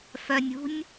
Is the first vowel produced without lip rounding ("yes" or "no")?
no